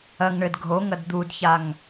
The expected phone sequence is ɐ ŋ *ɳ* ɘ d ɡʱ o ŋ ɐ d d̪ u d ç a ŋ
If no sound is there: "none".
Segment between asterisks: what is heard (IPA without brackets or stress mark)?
ɳ